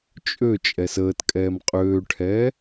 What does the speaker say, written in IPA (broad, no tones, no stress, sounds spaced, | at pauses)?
t͡ʃʼ ø t͡ʃʼ ɛ s əː t kʼ ɛː m qʼ øː ʈʰ ɛː